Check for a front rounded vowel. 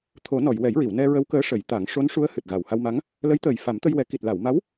absent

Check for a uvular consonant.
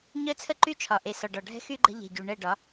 absent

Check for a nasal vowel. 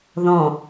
present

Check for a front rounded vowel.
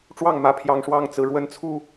absent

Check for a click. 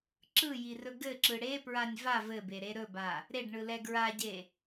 present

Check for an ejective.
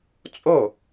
present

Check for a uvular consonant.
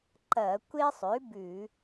absent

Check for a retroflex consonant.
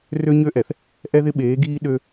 absent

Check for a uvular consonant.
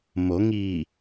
absent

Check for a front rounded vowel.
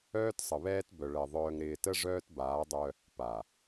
present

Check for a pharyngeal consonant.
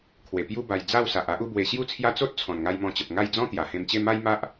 absent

